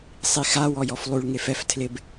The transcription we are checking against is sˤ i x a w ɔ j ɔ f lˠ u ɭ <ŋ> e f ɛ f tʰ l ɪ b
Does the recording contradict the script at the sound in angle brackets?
no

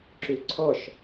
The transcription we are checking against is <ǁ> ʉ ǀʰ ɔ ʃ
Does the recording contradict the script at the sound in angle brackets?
no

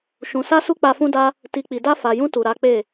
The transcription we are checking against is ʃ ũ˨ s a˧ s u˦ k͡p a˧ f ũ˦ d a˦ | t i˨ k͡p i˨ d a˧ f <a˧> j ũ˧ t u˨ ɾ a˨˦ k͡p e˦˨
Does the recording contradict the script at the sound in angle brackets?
yes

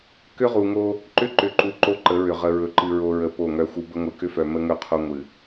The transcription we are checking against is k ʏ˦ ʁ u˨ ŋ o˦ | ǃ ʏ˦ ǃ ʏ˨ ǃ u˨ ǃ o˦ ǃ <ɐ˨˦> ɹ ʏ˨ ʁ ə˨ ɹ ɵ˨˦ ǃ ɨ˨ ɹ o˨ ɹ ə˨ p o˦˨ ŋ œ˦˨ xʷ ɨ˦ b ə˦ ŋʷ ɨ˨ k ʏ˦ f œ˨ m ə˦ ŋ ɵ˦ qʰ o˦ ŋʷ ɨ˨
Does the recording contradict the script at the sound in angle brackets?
yes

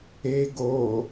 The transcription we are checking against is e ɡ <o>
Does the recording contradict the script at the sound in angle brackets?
no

